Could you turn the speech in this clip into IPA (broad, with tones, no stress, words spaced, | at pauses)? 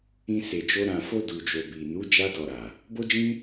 ĩ˧se˨d͡ʒo˧ ɾã˨fo˧ du˨d͡ʒo˨bi˨nu˨˦ d͡ʒa˧dɔ˨ ɾa˨ | bo˦d͡ʒĩ˦